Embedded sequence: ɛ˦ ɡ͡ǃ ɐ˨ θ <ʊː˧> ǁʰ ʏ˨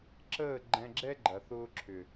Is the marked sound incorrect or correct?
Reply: correct